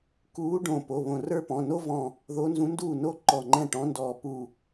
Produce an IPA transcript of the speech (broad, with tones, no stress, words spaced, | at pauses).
kuː˧˥ ɖõ˧˩ po˩˧˩βõ˧˩rə˞˥pɔ̃˩˧˩ no˥vɔ̃˧˩ | ðo˧˥nzũ˧˥nduː˥˩no˥ ǃɔ˧˩ŋ͡ǃɛ̃˥˩ ʈɔ̃˧˥ndɔː˧˩pu˧˩